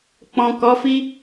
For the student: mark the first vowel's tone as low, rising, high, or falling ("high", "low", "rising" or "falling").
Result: low